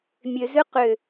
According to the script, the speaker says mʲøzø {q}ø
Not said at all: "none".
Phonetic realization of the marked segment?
q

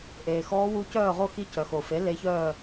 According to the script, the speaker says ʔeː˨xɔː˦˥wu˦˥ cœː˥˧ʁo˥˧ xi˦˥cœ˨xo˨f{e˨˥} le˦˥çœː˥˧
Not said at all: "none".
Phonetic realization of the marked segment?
e˨˥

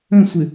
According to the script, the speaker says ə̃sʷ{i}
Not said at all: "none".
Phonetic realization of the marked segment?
ɪ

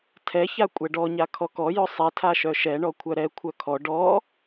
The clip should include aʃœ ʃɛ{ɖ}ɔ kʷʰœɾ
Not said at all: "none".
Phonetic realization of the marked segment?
ɳ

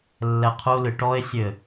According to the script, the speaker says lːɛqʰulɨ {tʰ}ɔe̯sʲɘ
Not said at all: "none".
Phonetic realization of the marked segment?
ʈ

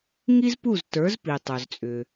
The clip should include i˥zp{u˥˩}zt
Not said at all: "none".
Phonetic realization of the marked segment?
u˥˩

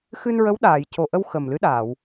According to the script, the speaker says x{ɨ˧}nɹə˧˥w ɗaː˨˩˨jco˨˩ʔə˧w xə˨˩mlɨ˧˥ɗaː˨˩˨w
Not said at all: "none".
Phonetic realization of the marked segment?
ɨ˧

